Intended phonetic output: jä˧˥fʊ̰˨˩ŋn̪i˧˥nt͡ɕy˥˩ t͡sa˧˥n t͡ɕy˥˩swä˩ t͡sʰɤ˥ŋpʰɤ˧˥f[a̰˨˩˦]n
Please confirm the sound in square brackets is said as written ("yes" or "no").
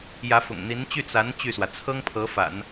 yes